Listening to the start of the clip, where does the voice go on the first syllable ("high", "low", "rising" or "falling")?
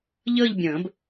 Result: falling